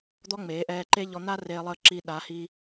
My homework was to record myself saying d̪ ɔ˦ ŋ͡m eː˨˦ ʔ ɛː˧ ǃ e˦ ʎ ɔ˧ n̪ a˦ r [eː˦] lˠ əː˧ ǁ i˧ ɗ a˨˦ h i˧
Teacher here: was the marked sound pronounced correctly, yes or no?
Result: no